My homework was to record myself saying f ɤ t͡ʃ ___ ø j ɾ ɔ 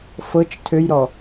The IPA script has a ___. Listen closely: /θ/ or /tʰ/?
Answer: tʰ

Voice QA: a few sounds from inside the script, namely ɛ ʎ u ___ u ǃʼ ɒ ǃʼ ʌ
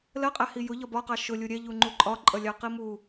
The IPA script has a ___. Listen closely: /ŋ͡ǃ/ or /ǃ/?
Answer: ŋ͡ǃ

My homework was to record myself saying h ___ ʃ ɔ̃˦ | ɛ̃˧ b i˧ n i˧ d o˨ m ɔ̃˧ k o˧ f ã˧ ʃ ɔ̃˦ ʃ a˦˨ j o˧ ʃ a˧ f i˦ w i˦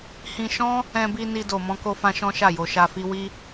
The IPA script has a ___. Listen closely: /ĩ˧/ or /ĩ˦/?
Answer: ĩ˧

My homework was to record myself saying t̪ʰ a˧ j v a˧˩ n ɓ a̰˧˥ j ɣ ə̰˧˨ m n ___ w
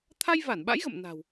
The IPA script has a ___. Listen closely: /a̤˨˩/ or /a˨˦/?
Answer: a̤˨˩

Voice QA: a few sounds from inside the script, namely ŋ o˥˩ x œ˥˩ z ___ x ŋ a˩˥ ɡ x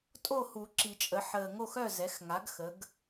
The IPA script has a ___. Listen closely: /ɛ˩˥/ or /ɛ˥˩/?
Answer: ɛ˩˥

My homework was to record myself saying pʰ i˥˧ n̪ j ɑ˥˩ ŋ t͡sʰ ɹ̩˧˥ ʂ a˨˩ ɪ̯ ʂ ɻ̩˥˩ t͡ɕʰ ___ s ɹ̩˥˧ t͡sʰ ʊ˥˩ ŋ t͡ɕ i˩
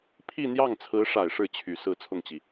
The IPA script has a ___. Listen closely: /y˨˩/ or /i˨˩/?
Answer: y˨˩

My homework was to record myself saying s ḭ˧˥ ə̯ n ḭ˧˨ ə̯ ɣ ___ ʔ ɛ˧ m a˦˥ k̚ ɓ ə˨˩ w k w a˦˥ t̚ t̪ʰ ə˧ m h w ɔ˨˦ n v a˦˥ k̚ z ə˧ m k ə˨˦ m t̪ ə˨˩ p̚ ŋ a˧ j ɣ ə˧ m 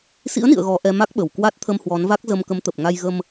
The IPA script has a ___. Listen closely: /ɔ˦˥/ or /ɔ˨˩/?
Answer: ɔ˨˩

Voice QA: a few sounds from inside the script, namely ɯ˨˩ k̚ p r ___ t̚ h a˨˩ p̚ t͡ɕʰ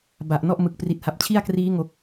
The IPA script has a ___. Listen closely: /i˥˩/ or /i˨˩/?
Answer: i˨˩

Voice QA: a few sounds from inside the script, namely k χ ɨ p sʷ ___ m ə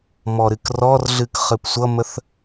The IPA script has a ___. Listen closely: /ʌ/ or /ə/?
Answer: ʌ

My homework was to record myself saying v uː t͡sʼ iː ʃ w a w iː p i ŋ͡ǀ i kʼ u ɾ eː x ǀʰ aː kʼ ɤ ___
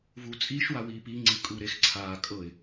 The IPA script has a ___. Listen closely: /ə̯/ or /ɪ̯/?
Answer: ɪ̯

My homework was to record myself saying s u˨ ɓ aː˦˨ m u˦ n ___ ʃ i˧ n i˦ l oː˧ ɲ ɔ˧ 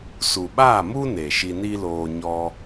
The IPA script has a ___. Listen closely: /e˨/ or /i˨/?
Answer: e˨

